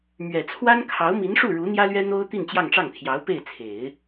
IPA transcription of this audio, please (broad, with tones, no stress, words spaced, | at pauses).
mɥɛ˨˩ t͡sʰwa˥nkʰɑ˧˥ʊ̯ mi˧˥nʂu˥˩ ɻu˧˥ n̪jä˥lɥɛ˥ n̪o˥ʊ̯ t̪i˥˧nt͡ɕjɑ˥˧ŋʈ͡ʂɑ˥˩ŋt̪ʰjɑ˧˥ʊ̯ pe˥˩ɪ̯t͡sʰe˨˩˦ɪ̯